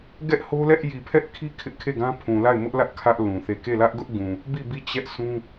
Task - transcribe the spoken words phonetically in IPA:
ɡɛ˦ʔho˦lɛ˦ʔ ji˨pʰɛ˦ʔkʰi˦ kʰɪ˦ʔkʰe˦˨ɡã˦pʰũ˨ la˦˨ɪ̯mʊ˦ʔlä˦ʔ kʰä˦ʔ lũ˨θe˦˨ ke˦˨lä˦ʔɡʊ˦ʔ ɡũ˨ | bi˦˨bi˦˨ t͡ɕɛ˦ʔsũ˦

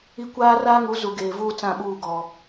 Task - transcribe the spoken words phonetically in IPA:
i˦ kʷaː˦raː˦ŋu˨˦ zu˨ɡeː˨vuː˦ t͡sã˦˨ɓuː˦˨ ɡɔ˨

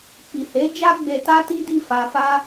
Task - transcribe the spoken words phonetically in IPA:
k͡pi˨he˨˦ d͡ʒa˦ ɡ͡be˧ta˦ti˦ di˦˨ fa˧fa˦

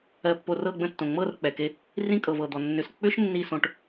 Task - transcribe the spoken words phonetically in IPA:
ɜ˨pːo˨ rɤ˦˨ɡ͡bə̃˦ tːõ˨ŋ͡mɤ˦˨rk͡pɛ˨ke˧ | rĩ˦kʼɤ˨vɤ˨d̪ɔ˨ nːʏ˨sk͡pʏ˦ʃ nːi˦˨sõ˧ʈ

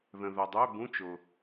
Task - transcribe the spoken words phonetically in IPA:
ðə̃˨ ðœ˨dˤø˧˥˧bũ˧˥˧ t͡ʃʊ˨

